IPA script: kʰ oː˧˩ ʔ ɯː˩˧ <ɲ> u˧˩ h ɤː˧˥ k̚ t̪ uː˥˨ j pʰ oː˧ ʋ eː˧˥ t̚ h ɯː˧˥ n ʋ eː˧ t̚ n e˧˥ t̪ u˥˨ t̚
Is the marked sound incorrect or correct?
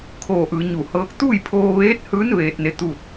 correct